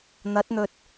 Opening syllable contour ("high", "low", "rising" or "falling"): rising